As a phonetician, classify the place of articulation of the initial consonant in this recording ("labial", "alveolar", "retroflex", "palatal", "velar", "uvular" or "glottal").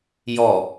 palatal